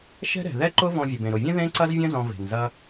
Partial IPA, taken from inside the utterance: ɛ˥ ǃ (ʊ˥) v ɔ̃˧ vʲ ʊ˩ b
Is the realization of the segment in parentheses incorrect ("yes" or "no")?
no